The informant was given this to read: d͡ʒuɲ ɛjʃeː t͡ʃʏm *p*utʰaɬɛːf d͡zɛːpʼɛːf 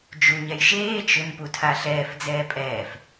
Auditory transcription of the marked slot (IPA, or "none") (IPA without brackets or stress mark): p